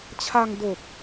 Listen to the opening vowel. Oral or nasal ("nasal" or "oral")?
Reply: oral